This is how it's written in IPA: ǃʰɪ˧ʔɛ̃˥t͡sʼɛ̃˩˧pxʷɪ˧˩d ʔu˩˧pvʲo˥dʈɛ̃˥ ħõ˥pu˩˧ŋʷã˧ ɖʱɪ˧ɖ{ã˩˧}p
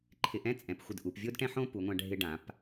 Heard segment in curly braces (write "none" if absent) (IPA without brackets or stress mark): ã˩˧